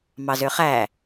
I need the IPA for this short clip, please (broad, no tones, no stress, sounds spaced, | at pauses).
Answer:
m ɑ z ø χ æ